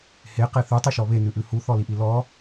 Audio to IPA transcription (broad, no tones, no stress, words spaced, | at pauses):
heqe θʉtˤʉʃɔ βenʉʔʉ huθɔliʔi lɔ